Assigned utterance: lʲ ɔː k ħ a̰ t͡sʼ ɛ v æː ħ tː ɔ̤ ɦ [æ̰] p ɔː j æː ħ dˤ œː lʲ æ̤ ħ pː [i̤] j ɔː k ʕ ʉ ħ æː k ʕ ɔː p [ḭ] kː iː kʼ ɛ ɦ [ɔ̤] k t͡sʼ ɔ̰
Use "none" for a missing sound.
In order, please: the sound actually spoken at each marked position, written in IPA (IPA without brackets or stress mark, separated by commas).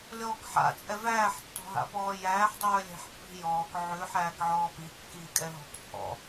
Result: a̰, i̤, i, ɔ̤